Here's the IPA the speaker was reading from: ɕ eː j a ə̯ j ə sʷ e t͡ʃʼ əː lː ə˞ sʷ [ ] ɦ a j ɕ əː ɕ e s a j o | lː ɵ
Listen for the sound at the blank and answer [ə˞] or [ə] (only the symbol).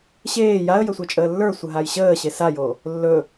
ə